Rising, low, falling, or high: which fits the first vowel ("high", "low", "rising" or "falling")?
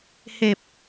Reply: low